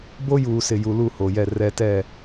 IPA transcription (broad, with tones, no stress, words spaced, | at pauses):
bo˦juː˨ sɪ˨ju˨ lu˦˨ho˨jɛ˦˨ rɛ˦ tɛ˦˨